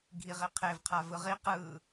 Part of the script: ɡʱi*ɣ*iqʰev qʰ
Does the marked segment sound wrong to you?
yes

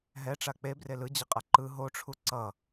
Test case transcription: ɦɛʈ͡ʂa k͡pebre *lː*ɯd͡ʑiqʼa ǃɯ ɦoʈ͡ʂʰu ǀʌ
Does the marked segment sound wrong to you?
yes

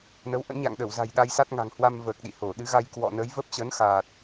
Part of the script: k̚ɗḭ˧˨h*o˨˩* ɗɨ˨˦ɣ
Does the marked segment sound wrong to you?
yes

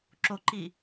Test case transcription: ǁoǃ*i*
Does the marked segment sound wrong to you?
yes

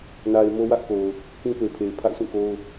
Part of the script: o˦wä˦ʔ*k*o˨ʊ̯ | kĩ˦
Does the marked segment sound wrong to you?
no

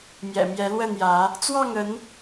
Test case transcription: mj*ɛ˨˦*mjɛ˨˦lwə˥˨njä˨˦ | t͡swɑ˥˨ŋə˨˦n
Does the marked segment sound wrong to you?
yes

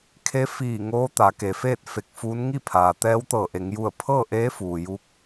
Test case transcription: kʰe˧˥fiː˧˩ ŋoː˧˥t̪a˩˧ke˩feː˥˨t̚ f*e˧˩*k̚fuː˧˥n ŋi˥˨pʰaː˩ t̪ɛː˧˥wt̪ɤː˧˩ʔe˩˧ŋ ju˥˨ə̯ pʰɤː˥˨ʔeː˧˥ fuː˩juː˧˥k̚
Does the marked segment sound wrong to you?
no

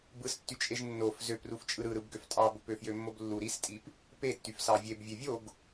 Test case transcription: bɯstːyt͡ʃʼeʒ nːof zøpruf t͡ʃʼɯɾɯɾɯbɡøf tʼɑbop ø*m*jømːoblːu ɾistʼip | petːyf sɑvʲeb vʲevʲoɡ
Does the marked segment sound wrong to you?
yes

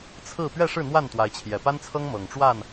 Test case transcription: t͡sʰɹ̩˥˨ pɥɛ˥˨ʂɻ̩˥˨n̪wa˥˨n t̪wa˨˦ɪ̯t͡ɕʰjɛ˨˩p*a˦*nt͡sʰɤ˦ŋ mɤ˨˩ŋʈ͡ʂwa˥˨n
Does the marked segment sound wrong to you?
no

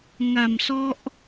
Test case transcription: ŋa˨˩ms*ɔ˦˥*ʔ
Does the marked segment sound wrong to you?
no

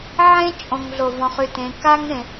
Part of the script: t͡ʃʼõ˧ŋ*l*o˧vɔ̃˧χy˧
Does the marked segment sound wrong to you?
yes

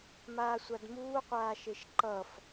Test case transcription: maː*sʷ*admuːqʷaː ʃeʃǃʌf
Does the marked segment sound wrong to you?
no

